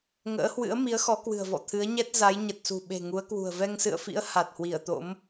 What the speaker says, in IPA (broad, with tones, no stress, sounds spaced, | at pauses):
ŋ ə̰ː˧˥ h w ɨ̰˧˥ ə̯ m i˨˦ ə̯ x ɔ˨˦ k w ɨ̤˨˩ ə̯ v ɔ̰˧˨ t̪ʰ ɨ˨˦ ə̯ ɲ ɛ˦˥ t̚ z a˨˦ j ɲ ə˨˩ t̚ s ṳ˨˩ ɓ e̤˨˩ ŋ u˨˦ ə̯ k w ṳ˨˩ ə̯ v ɛ˧ ŋ s ɨ̰˧˨ ə̯ f ḭ˧˥ ə̯ h a˨˩ t̚ h w i˧˩ ə̯ t̪ o̰˧˥ m